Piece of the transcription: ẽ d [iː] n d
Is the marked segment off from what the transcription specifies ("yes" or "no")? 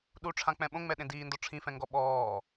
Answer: no